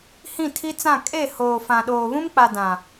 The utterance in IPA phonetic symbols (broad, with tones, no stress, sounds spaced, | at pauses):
h ĩ˦˨ tʰ i˦ t͡s ã˦˨ kʼ e˦˨ h oː˨ f ã˨ ɗ oː˨ β ũ˦ m k͡p a˨ d ã˨